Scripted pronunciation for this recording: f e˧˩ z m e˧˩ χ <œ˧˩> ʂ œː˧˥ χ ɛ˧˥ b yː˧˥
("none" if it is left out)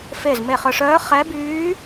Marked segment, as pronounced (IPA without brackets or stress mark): œ˧˩